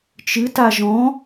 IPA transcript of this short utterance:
t͡ʃ ɨ t a ʒ ɔ̃

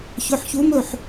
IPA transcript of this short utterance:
ç ɵ˩˧˩ ħ ç u˨˥ m ɵ˥˩ ħ

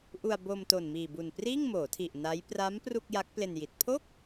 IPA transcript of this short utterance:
ʔ u˧ a̯ b o˧ m t o˨˩ n m iː˨˩ b u˨˩ n p r iː˥˩ ŋ m oː˩˦ tʰ i˨˩ ʔ n a˦˥ j p r a˦˥ m p r u˥˩ k̚ j a˦˥ k̚ p l e˧ n j i˨˩ t̚ pʰ o˥˩ k̚

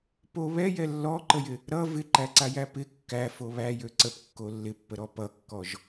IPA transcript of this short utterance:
p o β ɛ j ɛ lː ɔ ǃ ə j ɪ | ɾ ʌ v ɪ ǃ æ ǀ a j æ p ɪ kː æ f o β æ j ø ǀ ə p kː o lː ɪ pː ə ɾ ɔ p ʌ kː ɔ ʒ

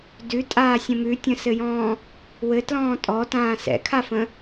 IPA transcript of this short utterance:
d ʉ tʼ aː sʲ ə̃ m ʉ tʲ ə̃ s ɘ j ɔ̃ː | w ɘ t l ɔ̃ː tʼ ɔ t ãː s ɛ̰ kʰ a f ə̃

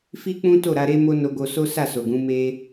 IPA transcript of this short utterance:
f i˦ k͡p ũ˦ t o˦˨ ɾ a˧ ɾ e˦ m o˦ n o˧ ɡ o˧ s o˦ s a˦˨ s o˨ ɡ ũ˨˦ m e˦

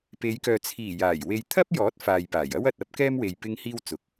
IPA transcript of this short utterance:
p e˨˧ j k œː˨ t͡sʰ iː˨˩ j aː˨˩ j w e˨ j t̪ʰ ɐ˥ p̚ j ɔː˨˥ t̚ f aː˨ j p aː˨˩ j ɐ˥ w ɐ˨ t̚ ɐ˥ p̚ k ɛː˥ m w e˨ j p ɪ˥ ŋ h iː˥ w t͡s ʊ˨˥ k̚

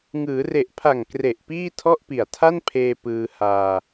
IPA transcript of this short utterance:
ŋ ɯː˩˦ r e˨˩ ʔ pʰ a˨˩ ŋ k r e˨˩ ʔ p iː˥˩ tʰ ɔ˥˩ ʔ p i˨˩ a̯ tʰ a˥˩ n pʰ eː˧ p ɯː˧ h aː˧

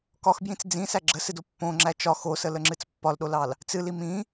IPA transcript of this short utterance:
k ɒ x b j ĩ t͡s d͡z ĩ s æ ɡ͡ǁ ə s ɨ d o pː õ ŋ͡ǁ æ t͡ʃ ɒ x o s ə l ə ŋ͡ǁ ɨ t͡s pː ɒ l ɗ o l ɑ l | t͡s ɨ l i m ĩ

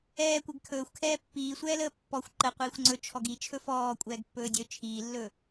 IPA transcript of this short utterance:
ɛː kʷ ɛ ɡ kʰ ɵː xʷ kʰ ɛː pː iː sʷ ɛː l əː pː ɔ xʷ ǃ ə qʷ iː xʷ ŋ͡ǀ ɵ t͡ʃʰ ɔ ɡ i t͡ʃʰ ɵ f ɔː kʷʼ ɛː ɡ pː ɵː dʲ ɵ t͡ʃʰ iː lː ɵ

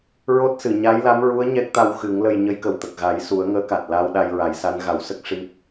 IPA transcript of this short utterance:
ɹ o˦˥ t̚ s ɨ˨˩˨ ɲ a˧˥ j l a˧˥ m ɹ u˧˥ ə̯ ɲ ɛ˦˥ k̚ t̪ a˧ w x ɨ˨˩˦ ŋ l ə˧ j ɲ ə˧˥ j k ə˨˩ w t̪ ə˨˩ k̚ ɣ a˨˩˦ j s u˨˩˦ ə̯ ŋ əː˧˥ k a˨˩ t̚ l aː˧ w ɗ a˧ j ɹ a˨˩˦ j s a˧˥ n ɣ a˨˩˦ w s ə˦˥ k̚ ʂ i˦˥ p̚

